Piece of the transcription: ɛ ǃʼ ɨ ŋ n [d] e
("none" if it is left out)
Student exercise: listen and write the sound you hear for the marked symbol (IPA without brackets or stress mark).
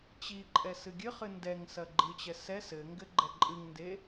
d